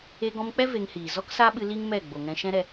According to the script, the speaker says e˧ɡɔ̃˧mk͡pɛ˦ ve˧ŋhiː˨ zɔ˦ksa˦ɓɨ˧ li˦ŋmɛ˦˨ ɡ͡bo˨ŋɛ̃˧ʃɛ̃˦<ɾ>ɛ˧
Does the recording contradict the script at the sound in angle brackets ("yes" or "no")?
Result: no